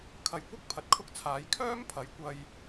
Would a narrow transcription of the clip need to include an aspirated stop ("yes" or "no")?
yes